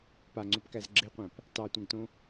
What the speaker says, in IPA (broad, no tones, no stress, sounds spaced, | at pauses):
p a ŋ͡ǀ o p k æ z ɡ͡ǁ e qʷ æ̃ p | t ɑ tʷ ɛ̃ ɡ t õ